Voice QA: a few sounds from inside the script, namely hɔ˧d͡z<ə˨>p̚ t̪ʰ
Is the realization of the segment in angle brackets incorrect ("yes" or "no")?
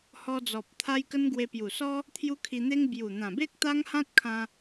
yes